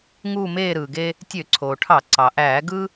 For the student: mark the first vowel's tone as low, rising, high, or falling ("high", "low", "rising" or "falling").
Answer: falling